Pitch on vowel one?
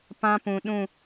high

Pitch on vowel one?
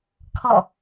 falling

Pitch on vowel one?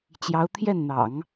rising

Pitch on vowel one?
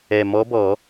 low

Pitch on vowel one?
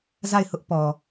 falling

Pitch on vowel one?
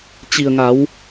low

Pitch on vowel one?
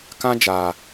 high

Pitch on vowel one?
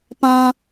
high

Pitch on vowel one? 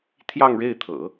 falling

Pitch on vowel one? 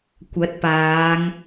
rising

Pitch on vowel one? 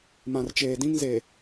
low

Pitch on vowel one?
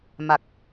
low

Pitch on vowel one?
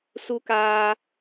high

